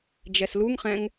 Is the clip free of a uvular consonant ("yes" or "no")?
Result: no